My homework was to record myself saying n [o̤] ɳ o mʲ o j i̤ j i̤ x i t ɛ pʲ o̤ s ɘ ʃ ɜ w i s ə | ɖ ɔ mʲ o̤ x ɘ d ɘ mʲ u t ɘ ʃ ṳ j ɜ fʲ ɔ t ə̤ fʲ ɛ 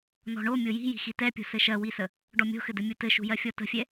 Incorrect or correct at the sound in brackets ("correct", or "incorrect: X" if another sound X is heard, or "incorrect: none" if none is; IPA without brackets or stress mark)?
incorrect: ɔ̤